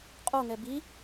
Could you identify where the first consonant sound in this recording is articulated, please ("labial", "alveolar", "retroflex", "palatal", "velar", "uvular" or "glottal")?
uvular